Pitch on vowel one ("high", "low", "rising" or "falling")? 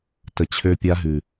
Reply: low